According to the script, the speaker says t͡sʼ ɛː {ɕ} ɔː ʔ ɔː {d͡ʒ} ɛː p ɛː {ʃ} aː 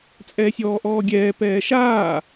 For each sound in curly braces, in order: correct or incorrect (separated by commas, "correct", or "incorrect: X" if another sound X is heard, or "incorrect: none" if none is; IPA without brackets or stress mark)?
incorrect: sʲ, incorrect: ɡʲ, correct